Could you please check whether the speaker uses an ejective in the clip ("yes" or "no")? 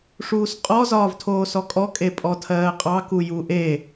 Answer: yes